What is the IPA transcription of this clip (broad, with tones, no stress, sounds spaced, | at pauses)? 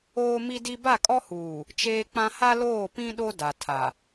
oː˦ m i˦ d i˦ b a˦˨ kʼ ɔ˦ h uː˨ | t͡ʃ eː˦ k͡p ã˦ h a˦ l oː˦˨ p ĩ˦ ɗ o˦ d a˨ tʰ a˨